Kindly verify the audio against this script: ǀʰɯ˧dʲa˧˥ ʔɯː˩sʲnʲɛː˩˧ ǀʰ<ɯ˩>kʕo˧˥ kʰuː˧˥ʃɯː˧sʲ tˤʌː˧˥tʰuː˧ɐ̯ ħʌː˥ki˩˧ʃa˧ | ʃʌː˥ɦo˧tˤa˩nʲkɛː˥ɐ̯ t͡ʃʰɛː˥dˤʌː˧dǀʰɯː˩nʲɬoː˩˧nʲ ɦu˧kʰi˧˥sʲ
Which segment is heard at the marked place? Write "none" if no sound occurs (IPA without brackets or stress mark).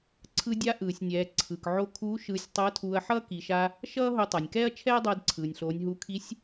ɯ˩